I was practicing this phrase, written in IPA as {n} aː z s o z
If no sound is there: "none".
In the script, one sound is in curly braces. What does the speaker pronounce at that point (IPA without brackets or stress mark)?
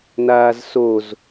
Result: n